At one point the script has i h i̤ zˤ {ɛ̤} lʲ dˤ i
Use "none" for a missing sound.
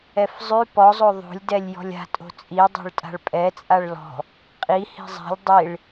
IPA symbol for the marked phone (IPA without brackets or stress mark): ɛ̤